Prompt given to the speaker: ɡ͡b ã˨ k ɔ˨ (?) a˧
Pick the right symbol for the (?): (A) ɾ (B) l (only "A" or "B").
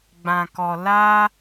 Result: B